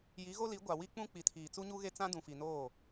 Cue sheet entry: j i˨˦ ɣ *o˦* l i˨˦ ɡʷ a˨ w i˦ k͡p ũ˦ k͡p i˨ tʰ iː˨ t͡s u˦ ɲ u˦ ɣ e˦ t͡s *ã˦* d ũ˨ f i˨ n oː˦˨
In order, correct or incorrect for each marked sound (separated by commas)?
correct, correct